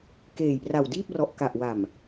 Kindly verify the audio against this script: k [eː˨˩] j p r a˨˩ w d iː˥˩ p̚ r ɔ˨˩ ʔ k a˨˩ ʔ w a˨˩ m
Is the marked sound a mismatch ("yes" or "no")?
no